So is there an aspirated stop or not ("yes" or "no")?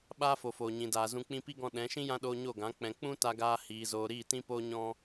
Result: no